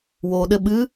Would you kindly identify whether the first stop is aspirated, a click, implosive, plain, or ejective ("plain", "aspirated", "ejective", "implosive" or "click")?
implosive